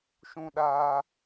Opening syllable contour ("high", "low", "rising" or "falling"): low